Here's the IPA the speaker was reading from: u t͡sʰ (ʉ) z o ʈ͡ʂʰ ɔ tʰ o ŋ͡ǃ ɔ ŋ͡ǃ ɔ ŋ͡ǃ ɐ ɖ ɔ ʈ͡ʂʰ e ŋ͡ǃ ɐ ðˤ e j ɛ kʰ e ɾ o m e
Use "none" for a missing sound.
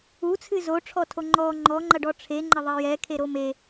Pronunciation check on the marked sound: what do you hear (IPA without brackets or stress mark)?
ɨ